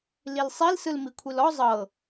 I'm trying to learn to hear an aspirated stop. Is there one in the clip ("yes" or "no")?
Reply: yes